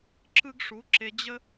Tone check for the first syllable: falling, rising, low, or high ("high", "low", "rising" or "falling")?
high